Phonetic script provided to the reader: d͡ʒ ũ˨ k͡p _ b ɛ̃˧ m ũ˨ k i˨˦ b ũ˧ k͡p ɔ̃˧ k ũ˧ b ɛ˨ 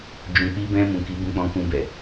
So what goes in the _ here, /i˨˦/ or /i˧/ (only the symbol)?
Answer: i˧